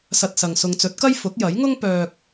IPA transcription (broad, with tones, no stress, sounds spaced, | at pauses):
s ɐ˧ t̚ s ɐ˨ ŋ s ʊ˨ ŋ t͡s ɵ˨˥ t̚ k ɐ˥ j f ʊ˨˥ k̚ j ɐ˨˥ j ŋ ʊ˥ ŋ p œː˨ k̚